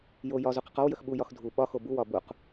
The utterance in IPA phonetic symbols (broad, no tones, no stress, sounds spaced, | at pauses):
j o j ɒ z u q ə q ɒ w j ə x ɓ u j ɒ x dʱ u ɓ ɒ x o b u w ɒ b u q